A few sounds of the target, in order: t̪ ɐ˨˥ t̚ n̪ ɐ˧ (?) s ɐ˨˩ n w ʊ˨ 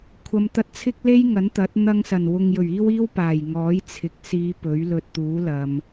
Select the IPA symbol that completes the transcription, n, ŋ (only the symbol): ŋ